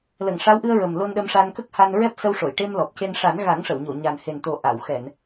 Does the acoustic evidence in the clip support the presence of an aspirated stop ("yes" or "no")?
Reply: no